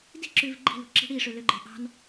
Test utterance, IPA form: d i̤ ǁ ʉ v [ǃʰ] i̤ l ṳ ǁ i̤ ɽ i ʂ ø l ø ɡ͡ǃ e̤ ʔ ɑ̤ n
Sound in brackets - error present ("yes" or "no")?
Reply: yes